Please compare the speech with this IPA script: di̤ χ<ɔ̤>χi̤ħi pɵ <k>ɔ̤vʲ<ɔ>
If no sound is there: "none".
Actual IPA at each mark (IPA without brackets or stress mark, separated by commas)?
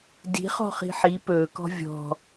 ɔ̤, k, ɔ̤